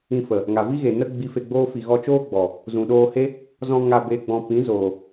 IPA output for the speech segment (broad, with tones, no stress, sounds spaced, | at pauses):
ĩ˧ f ə˨ | ŋ a˨ v i˦ ɣ e˨ n ə˦ ɡ͡b i˧ f e˧ ɡ͡b oː˦ f i˧ ɣ ɔ˦ t͡ʃ oː˦ ɡ͡b ɔ˨ | z ũ˨ ɗ oː˧ h e˦ | z ɔ̃˧ ŋ a˧ b e˧ ɡ͡b ɔ̃˧ p ĩ˨˦ z oː˨